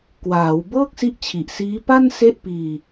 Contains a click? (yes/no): no